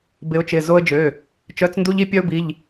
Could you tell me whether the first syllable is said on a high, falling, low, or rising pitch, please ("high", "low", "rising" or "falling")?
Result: rising